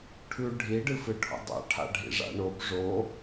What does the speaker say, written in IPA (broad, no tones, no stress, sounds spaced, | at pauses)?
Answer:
ʈʰ ʉ ɖʱ i ɖ ɨ f ɨ ʈʰ ṵ dˤ a̰ ʈʰ a̰ ɖʱ ḭ ʐ a̰ ɳ o b ʐ o